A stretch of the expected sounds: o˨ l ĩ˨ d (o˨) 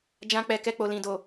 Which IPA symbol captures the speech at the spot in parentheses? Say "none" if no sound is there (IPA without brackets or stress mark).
o˨